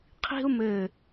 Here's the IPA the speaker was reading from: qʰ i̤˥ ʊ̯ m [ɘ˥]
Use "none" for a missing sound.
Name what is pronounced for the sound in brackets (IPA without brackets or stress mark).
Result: ɘ˧˩